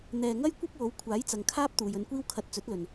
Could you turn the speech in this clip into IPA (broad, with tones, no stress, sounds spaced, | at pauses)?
n̪ ɛː˨ ŋ ɐ˥ j kʷ ɐ˥ p̚ w o˨˥ w kʷʰ aː˨˥ j t͡s ɐ˨ ŋ kʰ aː˥ p̚ t̪ uː˨ j ɵ˧ n kʷ iː˥ w kʰ ɐ˧ t̚ t͡s ɵ˨˥ t̚ l ɵ˨ n